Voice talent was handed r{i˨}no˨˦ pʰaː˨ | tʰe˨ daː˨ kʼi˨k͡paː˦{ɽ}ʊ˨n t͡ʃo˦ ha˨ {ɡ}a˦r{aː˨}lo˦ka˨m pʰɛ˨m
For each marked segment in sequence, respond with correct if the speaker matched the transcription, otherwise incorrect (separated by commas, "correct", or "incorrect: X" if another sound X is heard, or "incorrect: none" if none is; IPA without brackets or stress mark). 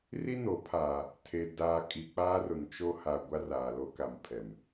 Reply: incorrect: i˦, incorrect: r, incorrect: ɡʷ, correct